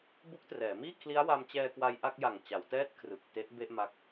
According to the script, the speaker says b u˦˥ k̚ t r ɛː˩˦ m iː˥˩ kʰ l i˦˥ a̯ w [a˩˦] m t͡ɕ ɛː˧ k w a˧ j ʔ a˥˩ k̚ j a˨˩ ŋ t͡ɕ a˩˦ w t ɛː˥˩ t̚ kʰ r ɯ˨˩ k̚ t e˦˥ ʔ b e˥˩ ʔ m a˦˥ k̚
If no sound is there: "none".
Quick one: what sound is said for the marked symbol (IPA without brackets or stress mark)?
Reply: a˧